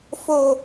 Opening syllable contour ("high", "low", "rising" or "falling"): low